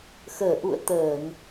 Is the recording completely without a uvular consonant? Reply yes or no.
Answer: yes